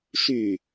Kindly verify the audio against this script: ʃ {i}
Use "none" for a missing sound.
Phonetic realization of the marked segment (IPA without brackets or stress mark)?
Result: y